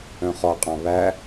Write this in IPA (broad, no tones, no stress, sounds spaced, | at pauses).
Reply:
œ̃ χ ɔ qʼ ɑ̃ β æ